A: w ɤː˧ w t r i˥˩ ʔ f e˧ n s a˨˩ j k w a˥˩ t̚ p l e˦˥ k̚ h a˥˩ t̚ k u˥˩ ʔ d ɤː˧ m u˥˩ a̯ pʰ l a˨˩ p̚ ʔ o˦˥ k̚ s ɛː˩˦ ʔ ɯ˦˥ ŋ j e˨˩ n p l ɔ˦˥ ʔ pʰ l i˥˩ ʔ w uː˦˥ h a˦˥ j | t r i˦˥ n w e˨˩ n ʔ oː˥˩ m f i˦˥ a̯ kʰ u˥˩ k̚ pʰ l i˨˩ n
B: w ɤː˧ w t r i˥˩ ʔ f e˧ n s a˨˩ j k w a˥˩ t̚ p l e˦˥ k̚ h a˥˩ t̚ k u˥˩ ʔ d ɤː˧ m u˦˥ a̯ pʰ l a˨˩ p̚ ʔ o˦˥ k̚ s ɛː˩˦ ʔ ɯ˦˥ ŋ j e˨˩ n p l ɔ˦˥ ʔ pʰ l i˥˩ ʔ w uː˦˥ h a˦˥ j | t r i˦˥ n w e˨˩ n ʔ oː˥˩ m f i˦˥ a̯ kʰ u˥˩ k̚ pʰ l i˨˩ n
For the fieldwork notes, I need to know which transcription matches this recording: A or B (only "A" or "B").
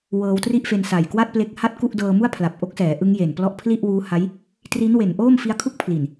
A